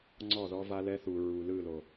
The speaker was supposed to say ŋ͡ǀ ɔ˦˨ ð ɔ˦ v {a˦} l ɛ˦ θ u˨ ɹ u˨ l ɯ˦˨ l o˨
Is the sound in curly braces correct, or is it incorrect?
correct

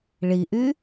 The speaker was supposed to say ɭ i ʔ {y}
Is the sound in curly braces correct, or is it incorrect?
correct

